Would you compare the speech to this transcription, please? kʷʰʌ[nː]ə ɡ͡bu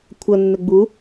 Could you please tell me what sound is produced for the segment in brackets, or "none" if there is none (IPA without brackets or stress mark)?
nː